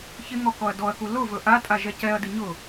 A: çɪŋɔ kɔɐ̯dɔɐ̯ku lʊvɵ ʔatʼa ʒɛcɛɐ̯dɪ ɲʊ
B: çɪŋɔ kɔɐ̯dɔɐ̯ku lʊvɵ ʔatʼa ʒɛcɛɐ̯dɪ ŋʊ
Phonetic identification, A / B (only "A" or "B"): A